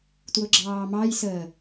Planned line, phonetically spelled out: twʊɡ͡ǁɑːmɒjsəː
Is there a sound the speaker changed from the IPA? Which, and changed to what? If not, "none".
ɒ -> ɑ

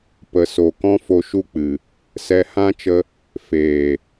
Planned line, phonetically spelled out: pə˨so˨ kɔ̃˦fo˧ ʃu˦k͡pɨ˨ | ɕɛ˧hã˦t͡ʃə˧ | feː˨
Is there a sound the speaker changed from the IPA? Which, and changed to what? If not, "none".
ɕ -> s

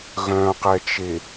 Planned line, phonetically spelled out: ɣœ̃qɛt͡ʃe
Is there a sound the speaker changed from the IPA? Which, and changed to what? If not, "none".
none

